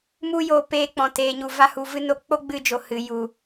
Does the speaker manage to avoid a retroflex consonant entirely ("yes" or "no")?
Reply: yes